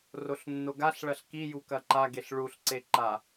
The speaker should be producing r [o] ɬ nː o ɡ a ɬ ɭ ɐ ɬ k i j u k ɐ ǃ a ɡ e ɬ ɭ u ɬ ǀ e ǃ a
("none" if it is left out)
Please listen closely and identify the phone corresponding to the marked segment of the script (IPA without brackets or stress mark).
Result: o